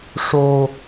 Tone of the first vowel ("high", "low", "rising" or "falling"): high